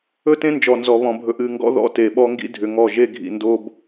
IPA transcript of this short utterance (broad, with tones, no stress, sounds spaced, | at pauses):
ɵ˦ t ẽ˦ n d͡ʒ ɔ˨ n z ɔ˨ β ɔ̃˨ bʱ ɵ˨ ʔ ɨ˦˨ ŋ ɡ ɔ̰˦ ð ɔ̰˦ t e˨ ɓ ɔ˦ ŋ ɡ ḭ˦ dʱ ʏ˨ ŋ ɔ˦˨ ʒ e˦ ɡʱ ḭ˨ n d o˦ b